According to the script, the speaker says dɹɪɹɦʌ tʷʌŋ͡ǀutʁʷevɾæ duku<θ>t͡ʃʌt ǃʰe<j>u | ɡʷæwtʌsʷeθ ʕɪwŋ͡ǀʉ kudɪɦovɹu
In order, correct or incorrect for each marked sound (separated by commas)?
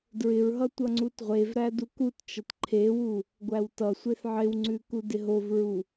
incorrect, incorrect